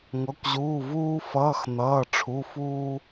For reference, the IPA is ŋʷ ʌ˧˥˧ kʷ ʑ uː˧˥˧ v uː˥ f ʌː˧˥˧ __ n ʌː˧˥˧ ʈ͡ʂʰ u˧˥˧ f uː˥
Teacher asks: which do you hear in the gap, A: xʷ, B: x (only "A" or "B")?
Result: B